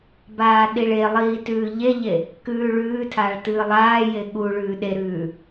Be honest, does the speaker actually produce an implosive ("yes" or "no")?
yes